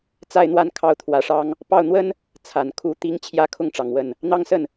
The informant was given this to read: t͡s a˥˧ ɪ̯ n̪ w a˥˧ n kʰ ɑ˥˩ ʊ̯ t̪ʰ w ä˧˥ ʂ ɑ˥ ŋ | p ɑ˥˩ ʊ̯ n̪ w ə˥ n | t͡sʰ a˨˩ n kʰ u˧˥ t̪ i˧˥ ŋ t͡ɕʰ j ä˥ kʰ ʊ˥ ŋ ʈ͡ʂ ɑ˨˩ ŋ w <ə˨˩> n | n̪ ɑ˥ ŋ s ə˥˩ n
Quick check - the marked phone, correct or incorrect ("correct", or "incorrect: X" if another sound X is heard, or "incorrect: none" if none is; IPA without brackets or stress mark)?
incorrect: ə˥˩